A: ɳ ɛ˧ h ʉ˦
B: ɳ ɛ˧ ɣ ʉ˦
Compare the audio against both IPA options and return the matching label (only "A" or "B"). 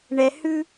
A